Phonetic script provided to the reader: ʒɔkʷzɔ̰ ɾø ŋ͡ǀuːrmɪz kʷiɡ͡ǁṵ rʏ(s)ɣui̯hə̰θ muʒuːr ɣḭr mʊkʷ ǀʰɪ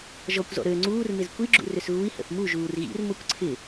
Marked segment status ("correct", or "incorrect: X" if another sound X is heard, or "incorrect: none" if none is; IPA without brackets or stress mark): correct